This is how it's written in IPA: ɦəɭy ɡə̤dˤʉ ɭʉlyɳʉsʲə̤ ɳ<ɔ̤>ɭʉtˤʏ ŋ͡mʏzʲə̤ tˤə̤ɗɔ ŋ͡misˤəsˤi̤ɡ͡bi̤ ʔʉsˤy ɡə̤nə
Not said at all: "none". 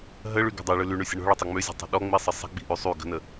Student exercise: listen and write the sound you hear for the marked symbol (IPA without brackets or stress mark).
ɔ̤